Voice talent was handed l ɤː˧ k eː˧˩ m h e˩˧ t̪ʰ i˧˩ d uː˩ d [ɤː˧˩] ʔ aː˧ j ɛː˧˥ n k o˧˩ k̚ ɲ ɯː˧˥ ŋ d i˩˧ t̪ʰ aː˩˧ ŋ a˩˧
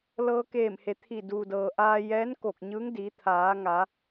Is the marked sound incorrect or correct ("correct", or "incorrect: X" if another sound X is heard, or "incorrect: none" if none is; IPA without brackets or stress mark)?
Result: incorrect: ɤː˩